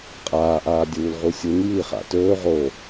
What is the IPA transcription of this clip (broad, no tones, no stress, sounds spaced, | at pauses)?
qʼ aː ʔ aː dʲ uː l ʁ u sʲ u n j i χ a̰ t ɵː ʁ o